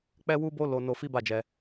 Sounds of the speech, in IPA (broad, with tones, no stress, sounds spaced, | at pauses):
k͡p ɛ˦ w u˦ b o˦ l o˧ n o˧ f i˦ b a˦˨ d͡ʒ ɛ˧